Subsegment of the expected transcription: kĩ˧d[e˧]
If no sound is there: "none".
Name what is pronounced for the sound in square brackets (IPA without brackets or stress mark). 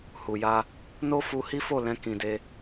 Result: e˦